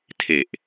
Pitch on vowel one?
low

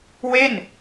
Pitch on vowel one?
falling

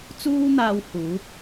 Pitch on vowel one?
high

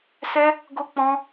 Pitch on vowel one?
high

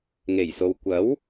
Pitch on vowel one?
low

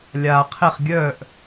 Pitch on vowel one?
low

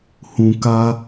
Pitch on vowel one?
low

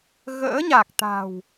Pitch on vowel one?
rising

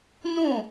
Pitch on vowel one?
falling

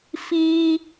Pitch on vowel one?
high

